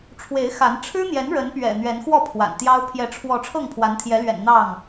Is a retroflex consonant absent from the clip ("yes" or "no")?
no